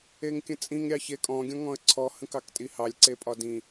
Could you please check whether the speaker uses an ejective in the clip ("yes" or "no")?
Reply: yes